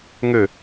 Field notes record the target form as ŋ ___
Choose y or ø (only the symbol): ø